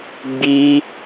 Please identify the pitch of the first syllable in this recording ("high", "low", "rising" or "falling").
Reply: high